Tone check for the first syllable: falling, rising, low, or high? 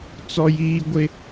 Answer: high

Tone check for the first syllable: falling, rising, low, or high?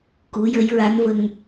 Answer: rising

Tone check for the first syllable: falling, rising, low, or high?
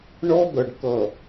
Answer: high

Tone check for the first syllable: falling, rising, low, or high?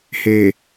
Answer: low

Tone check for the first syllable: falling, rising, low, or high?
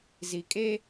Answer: low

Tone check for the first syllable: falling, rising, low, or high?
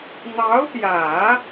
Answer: rising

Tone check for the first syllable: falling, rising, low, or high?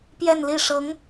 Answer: falling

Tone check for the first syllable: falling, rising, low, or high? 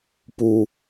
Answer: low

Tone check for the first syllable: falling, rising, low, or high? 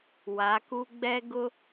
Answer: rising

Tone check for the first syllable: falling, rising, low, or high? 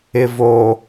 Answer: low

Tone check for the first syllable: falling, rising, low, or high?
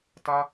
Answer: high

